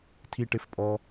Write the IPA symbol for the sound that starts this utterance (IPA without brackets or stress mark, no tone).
tʰ